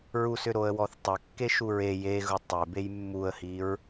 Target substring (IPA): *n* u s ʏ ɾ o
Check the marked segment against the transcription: incorrect: ɹ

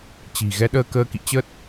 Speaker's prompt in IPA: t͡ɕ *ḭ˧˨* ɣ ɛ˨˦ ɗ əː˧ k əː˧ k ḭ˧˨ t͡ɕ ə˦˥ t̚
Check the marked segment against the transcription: incorrect: i̤˨˩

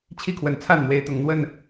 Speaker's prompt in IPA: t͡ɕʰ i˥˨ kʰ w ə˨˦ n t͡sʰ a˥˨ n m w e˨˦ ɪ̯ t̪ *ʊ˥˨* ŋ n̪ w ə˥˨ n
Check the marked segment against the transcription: incorrect: ʊ˨˩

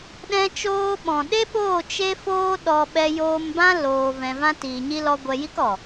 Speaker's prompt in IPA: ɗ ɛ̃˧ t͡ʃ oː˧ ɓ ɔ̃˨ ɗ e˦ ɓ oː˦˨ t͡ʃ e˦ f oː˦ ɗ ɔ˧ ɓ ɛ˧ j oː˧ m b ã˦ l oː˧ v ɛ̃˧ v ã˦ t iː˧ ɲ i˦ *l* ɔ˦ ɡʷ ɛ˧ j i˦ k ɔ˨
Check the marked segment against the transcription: correct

